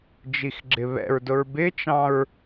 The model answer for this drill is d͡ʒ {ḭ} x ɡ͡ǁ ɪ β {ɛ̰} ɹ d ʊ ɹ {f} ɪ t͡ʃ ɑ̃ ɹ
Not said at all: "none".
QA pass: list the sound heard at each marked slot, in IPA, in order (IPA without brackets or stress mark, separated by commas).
i, ɛ̰, b